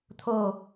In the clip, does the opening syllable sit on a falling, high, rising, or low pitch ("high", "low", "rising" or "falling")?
falling